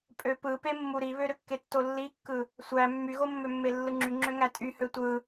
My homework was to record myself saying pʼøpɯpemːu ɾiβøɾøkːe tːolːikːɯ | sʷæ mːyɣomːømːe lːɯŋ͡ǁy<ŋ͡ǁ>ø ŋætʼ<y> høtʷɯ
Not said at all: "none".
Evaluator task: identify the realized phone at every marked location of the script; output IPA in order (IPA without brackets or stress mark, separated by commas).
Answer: ŋ͡ǁ, y